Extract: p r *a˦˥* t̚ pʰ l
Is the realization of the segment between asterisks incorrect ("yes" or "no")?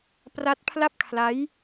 no